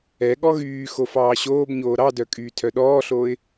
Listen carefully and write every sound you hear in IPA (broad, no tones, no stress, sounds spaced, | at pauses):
ɛ ɠ ɔ ɣ yː x o f ɑː ɕ oː b ɲ oː ɾ ɑ d œ kʼ yː tʰ œ ɗ ɔː ɬ oː ɪ̯